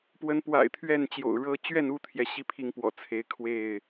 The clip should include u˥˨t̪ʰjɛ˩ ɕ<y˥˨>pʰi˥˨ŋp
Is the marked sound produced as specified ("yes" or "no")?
no